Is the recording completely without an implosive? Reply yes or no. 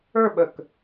no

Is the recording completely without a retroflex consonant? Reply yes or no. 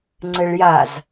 no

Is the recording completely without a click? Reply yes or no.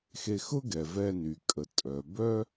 yes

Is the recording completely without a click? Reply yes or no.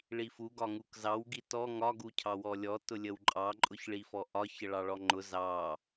no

